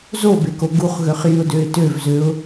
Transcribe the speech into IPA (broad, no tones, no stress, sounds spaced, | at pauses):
z o b e k o ɡ u χ ɣ ø χ j y ʊ̯ d ø ɪ̯ t ø v z ø ʊ̯